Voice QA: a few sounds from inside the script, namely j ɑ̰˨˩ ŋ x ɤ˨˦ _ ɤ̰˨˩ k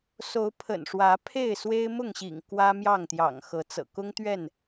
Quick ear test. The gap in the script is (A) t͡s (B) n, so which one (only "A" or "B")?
A